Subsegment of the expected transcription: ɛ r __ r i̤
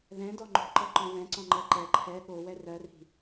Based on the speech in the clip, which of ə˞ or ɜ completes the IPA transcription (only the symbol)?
ɜ